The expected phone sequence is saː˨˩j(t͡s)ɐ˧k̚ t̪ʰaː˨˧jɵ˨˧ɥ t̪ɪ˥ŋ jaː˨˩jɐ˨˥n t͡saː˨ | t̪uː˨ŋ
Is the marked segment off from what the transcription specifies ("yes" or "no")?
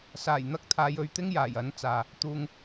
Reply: yes